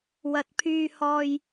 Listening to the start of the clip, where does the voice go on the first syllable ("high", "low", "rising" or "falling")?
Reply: low